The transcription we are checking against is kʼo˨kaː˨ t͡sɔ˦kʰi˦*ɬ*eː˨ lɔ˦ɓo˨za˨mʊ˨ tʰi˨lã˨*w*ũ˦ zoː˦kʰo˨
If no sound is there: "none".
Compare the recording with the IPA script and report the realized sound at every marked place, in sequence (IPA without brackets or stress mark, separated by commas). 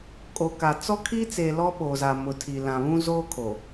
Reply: t͡s, β